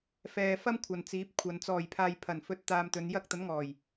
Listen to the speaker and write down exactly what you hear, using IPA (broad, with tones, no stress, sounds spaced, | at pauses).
f ɛː˨ f ɐ˥ m kʷʰ ɐ˨ n t͡s iː˨˥ p̚ kʷʰ ɐ˨˧ n t͡s ɔː˨˩ j pʰ aː˨ j pʰ ɐ˨˩ n f ɵ˧ t̚ t̪ aː˧ m t̪ ɵ˨˧ n j ɐ˧ k̚ t̪ ɐ˨˥ n ŋ ɔː˨˩ j